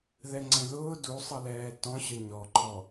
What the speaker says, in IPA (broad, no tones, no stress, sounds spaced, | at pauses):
ð ɛ ŋ͡ǀ ɛ̃ ð ʊː d u sˤ ʌ l ɛː t ɔ̃ ɕ ə ɲ ɔ ǃʰ ɔ